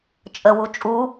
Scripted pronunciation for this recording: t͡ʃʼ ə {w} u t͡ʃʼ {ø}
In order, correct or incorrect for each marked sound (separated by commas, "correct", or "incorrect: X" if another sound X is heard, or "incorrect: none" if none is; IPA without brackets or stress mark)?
correct, incorrect: u